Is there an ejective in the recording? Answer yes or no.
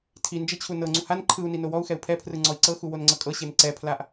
yes